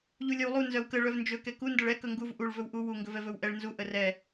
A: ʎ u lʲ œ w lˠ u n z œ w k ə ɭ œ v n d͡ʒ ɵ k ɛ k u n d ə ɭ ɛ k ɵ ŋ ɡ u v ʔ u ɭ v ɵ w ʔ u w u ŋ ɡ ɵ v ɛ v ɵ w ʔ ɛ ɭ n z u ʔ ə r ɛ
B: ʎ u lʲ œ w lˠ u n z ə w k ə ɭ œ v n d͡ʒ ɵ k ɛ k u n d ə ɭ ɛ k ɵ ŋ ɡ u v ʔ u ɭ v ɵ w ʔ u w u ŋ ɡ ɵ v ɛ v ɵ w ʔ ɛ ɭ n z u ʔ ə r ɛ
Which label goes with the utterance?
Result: A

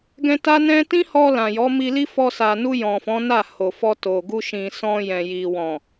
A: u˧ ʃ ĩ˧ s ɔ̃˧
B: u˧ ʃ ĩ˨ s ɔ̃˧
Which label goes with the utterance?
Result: B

